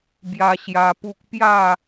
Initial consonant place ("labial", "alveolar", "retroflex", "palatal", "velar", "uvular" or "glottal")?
labial